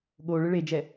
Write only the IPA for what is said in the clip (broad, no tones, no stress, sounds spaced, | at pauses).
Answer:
ɠ o ɭ ɯ ɭ e d͡ʒ ɛ